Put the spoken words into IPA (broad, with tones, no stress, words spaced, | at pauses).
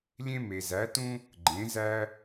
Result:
lʲẽ˥me˧zæ˧˥tũ˥ | ɡ͡ǃẽ˧˥zæ˥